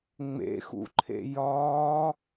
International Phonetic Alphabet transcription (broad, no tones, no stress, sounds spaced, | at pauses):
ŋ͡m ḛ x ṵ ǃʰ ḛ j ɒː